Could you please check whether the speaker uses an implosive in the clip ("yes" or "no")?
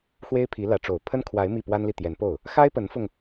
no